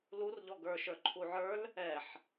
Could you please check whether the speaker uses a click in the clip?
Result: yes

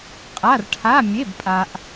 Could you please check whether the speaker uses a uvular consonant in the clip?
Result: yes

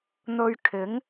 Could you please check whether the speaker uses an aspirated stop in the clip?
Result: yes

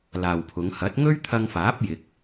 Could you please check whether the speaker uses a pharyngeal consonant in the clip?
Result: no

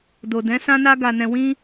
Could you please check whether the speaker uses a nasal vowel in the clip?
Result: yes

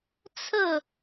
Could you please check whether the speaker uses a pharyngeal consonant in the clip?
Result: no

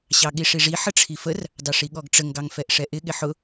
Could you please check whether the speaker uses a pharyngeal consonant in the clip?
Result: yes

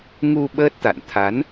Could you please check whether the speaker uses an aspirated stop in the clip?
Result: yes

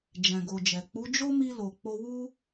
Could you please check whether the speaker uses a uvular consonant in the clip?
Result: no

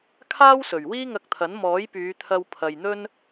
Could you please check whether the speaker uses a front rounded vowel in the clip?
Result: yes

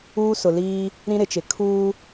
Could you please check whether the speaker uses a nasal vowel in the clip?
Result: yes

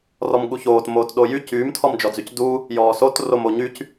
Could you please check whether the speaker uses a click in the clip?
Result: no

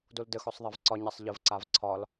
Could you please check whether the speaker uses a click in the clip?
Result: yes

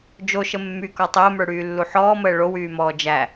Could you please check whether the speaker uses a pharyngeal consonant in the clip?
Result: yes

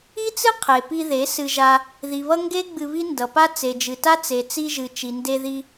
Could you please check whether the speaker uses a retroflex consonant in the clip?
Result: no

